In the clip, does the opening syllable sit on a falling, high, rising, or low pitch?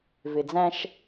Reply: low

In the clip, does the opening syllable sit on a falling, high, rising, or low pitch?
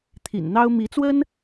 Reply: low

